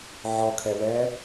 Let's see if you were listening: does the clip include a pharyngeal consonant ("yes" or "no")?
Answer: yes